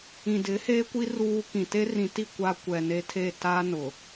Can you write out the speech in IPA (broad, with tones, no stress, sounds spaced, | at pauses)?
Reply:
ĩ˨ d ɪ˨˦ h eː˦ kʷ i˦ r uː˦ k ĩ˨ t e˦ r ĩ˨ t i˦˨ kʷ a˦ kʷ ɛ˨ n e˦ tʰ e˦˨ t aː˦ n ʊ˨